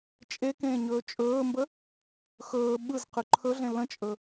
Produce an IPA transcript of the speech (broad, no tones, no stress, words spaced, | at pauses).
t͡ʃʼekẽː ɲɵːt͡ʃʼɵːmbə | xɵː ɓɯzqɯ ǃʰɵɮẽ lə̃t͡ʃʼɵ